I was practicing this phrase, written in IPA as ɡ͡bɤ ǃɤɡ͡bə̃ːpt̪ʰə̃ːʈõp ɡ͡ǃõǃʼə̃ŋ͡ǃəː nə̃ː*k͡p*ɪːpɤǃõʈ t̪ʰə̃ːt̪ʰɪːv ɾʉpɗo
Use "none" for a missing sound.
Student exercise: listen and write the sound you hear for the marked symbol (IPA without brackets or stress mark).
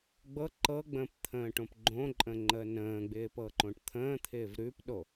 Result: ɡ͡b